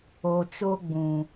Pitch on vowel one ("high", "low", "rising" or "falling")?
low